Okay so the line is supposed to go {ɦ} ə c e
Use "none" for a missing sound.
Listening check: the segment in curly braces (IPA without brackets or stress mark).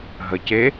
ɦ